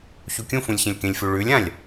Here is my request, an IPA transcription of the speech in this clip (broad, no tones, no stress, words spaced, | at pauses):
çukʲũfũlʲ çɛ̃lʲkẽlʲfʉ ɭʉlʲãlʲ